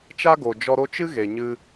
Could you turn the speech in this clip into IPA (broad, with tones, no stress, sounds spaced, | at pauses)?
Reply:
t͡ʃ a˦ ɡ o˨ d͡ʒ ɔ˧ ɾ o˦ t͡ʃ ɨ˦ ɣ e˨ ɲ ɨ˧